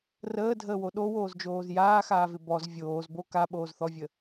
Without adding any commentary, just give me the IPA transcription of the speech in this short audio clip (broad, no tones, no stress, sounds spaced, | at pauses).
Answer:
r əː dʱ əː w o ɗ o w oː z d͡ʒ oː z j aː x aː v ɪ b ɔ z vʲ oː z b o k a ɓ oː z θ ɔ vʲ ə